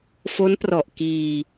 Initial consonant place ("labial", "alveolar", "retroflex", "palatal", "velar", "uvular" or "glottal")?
labial